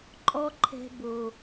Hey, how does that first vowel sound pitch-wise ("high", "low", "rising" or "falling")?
high